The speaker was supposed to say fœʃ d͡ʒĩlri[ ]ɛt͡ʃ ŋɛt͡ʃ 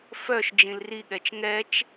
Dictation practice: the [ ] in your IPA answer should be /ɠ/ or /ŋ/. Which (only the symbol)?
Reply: ɠ